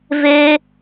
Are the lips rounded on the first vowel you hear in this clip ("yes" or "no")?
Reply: no